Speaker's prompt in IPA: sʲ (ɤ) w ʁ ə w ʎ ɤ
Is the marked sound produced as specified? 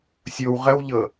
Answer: no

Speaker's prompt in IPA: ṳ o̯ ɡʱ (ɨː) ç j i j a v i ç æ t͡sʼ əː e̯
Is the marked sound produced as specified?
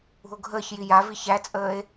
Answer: no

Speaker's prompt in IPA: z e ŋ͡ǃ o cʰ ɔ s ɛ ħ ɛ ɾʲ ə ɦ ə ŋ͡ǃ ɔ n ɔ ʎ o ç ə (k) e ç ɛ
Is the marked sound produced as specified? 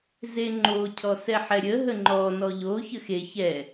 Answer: no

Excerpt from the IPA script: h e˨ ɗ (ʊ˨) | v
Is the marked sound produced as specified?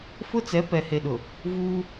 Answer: yes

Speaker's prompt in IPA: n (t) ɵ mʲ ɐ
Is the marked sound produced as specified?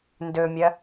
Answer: no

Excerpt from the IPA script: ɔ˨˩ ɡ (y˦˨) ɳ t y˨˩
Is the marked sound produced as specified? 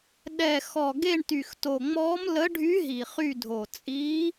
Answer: no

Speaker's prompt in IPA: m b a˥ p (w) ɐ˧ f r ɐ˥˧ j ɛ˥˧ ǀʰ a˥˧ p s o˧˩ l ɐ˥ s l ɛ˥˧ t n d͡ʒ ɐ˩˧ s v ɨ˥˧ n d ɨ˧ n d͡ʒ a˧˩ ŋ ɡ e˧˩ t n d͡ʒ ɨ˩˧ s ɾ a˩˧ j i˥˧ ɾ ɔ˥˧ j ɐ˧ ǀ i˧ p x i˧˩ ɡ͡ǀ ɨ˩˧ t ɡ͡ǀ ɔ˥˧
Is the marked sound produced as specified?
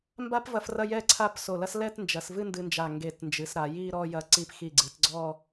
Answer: no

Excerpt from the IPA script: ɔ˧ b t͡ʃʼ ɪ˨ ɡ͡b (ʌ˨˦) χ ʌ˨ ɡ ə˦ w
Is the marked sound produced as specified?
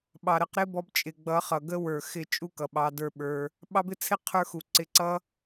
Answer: yes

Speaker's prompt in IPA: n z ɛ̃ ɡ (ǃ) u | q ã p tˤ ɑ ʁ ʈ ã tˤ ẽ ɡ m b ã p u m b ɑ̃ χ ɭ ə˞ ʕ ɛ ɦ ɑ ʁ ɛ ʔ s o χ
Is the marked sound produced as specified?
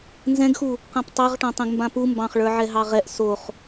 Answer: no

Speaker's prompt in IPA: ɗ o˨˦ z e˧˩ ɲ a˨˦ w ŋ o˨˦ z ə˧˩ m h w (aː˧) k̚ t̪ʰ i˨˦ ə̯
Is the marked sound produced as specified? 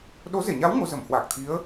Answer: no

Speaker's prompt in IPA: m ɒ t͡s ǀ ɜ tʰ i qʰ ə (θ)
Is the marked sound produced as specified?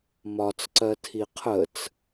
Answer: no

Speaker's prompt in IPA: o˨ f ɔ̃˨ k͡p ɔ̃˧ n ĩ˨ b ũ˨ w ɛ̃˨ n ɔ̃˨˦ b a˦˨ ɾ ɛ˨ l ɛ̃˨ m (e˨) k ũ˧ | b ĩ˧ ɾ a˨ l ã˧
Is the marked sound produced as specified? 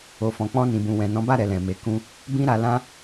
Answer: yes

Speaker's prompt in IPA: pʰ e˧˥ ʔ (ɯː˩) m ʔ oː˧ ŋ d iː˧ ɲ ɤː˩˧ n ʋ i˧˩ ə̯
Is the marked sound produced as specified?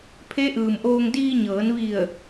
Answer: yes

